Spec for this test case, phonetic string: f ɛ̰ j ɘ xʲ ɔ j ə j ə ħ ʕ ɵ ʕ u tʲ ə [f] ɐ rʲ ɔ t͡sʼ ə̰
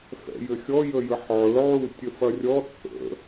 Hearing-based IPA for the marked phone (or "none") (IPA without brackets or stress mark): f